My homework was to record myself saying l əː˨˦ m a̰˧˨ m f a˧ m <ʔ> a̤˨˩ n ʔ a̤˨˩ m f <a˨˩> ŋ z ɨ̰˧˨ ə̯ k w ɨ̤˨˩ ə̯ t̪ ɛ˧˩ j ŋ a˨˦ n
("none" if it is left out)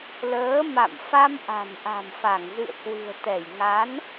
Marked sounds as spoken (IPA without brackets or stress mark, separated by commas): ʔ, a˧˩